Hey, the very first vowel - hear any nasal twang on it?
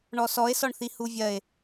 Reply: no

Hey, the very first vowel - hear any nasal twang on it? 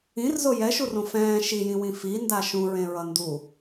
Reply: yes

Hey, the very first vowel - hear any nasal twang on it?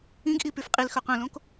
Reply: yes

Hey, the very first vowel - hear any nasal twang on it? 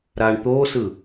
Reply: no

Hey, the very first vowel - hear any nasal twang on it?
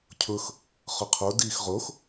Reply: no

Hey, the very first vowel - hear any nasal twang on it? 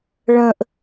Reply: yes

